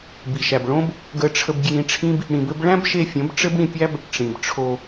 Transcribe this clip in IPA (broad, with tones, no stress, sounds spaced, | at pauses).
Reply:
b i˨ ʃ æ˨ b ɭ õ˦ b | ɡ ə˧ ʈ͡ʂʰ ə˧ b ɡ j ĩ˧ ʈ͡ʂʰ ĩ˦ b | ɽ ĩ˧ b ɘ˦ b ɭ æ̃˦ b ʃ e˧ fʲ ə̃˨˦ b ʈ͡ʂ ɘ˦ b ɽ ĩ˧ pʲ æ˦ b | ʈ͡ʂ ĩ˨ b ʈ͡ʂʰ o˧